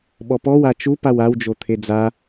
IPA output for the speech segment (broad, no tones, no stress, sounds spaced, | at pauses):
ɓ ɔ p ɔ w a t͡ʃ u p a w a w d͡ʒ o t̪ʰ e d͡z a